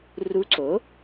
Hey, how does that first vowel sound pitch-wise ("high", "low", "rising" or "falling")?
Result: rising